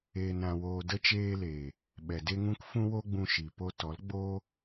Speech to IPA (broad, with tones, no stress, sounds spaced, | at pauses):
eː˧ n ɾ ã˧ w oː˧ d ə˧ t͡ʃ eː˧ l eː˨ | ɓ ɛ˨ d e˦ ŋ ũ˦ k f ũ˦ w o˦ ɡ͡b ũ˧ ʃ i˨ p o˧ t ɔ˨˦ l ɡ͡b oː˦